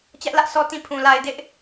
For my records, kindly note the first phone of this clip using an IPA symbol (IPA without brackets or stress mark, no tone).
t͡ɕ